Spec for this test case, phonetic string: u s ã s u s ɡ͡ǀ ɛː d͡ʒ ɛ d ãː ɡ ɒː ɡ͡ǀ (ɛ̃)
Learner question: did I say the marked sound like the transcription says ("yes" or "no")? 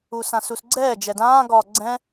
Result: yes